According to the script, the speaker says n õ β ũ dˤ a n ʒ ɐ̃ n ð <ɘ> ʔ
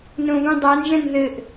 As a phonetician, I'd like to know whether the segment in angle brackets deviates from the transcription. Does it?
no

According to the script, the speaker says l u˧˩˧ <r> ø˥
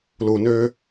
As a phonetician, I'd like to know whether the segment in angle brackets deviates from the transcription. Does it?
yes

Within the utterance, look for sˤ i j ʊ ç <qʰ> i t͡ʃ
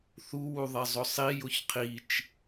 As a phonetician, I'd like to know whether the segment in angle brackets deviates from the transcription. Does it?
no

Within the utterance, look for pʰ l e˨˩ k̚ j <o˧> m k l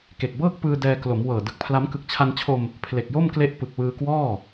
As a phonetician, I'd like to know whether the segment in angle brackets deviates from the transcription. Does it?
yes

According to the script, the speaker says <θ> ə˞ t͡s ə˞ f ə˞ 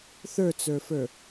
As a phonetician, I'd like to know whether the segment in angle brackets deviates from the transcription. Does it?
no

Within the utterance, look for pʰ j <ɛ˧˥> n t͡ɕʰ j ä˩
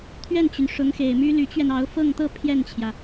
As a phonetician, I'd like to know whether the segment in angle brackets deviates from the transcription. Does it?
yes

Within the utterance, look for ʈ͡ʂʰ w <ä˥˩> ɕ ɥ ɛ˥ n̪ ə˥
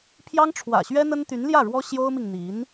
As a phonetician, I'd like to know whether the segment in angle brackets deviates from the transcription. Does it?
yes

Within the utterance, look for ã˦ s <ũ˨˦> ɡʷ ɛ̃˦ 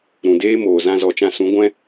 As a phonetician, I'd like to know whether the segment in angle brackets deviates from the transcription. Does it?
no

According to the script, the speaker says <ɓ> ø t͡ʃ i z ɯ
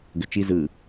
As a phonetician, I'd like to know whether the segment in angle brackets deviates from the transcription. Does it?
yes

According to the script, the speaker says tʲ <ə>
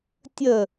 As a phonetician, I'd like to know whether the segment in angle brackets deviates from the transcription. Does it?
no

